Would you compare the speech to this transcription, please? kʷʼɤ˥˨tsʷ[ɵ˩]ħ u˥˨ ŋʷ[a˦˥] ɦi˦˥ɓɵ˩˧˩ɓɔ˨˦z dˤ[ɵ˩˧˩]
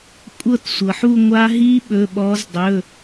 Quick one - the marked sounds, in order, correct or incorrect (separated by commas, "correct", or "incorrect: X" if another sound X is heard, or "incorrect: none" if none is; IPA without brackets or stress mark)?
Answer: incorrect: ɤ˩, correct, correct